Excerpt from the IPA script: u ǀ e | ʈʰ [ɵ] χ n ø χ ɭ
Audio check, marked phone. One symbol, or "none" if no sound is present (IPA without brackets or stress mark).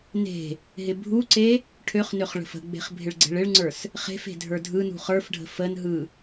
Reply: ø